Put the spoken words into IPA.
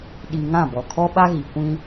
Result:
ɗ i˨ ŋ ã˦˨ b ɔ˨ kʰ ɔ˦ ɓ a˦ ɣ i˨ kʷ ĩ˦

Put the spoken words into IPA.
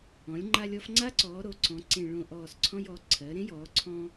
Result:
ɔ̃˩˧ lʲ ŋ͡ǃ a˧ lʲ ɔ˧ f ŋ͡ǀ a˦˥ ǀ ɔː˩˧ ɾ o˩˧ ǀ ɔ̃˩˧ ǀ ẽ˨˩ ɭ õ˨˩ ʔ ɔː˨˩ s ǀʰ ɔ̃˧ j ɔ˩˧ ǀʰ ɜ˩˧ ɾ ẽ˦˥ j ɔː˩˧ ǀʰ ɔ̃ː˧

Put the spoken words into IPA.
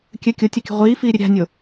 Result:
kʲ ɘ kʲ o tʲ ɐ kʲ ṳ ʁʷ iː f iː ɾʲ ɘ ɾʲ a̤ nʲ o

